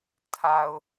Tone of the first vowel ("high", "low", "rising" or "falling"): low